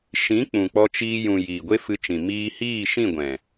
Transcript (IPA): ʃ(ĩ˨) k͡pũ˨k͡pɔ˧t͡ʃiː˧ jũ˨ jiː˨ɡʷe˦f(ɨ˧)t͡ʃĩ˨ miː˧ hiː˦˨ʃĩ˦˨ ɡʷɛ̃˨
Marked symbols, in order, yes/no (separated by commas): no, yes